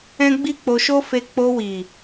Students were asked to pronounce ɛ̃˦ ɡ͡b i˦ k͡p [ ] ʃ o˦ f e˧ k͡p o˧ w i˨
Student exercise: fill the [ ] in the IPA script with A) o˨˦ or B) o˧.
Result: B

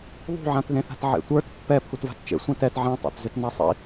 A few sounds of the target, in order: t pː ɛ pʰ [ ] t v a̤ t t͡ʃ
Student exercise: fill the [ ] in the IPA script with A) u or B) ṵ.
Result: A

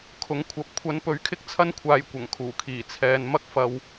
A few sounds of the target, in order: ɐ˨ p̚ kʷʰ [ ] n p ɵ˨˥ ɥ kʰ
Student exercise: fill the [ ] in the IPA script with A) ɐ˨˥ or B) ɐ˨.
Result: A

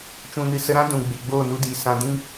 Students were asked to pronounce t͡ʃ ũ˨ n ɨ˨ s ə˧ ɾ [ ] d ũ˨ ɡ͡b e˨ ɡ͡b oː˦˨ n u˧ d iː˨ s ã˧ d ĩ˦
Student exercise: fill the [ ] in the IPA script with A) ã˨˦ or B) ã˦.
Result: B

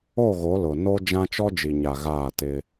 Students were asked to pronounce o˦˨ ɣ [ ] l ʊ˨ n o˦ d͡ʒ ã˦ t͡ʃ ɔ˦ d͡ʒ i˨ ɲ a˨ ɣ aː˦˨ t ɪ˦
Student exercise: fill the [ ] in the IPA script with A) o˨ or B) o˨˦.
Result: B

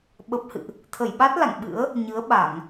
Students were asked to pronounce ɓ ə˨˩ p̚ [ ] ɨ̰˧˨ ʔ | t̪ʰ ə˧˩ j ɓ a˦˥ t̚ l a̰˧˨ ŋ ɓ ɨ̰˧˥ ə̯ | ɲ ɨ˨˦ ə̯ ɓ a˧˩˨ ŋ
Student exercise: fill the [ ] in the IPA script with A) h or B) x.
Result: A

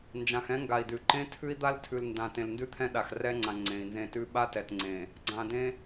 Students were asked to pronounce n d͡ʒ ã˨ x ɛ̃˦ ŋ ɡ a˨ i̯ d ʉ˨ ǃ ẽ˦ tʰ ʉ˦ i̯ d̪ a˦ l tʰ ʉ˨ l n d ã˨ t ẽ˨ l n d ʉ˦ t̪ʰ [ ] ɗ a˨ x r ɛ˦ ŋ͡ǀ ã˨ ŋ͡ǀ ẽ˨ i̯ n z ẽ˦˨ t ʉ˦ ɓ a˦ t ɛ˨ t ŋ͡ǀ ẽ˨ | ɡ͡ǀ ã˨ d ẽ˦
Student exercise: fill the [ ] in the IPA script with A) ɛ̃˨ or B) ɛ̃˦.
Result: B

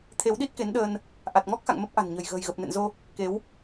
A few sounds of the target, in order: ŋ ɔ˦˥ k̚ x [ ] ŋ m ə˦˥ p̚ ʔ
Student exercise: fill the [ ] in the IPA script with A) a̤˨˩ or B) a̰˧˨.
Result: B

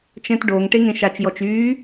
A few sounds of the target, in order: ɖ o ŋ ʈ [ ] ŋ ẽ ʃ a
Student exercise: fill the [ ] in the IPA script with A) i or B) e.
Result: B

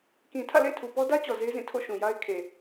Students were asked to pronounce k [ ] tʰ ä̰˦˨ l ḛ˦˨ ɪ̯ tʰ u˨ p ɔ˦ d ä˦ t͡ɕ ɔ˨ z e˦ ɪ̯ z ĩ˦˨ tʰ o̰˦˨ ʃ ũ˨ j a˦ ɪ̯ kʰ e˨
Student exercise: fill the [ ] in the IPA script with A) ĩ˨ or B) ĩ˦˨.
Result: A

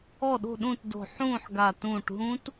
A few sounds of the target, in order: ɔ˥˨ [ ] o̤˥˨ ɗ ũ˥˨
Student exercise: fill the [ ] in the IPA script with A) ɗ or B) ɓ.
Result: A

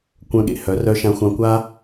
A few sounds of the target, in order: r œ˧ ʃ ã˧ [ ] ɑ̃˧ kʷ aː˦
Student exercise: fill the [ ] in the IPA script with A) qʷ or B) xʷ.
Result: B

